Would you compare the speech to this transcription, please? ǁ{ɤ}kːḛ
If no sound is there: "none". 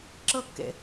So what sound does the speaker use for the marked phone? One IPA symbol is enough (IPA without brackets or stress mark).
ɤ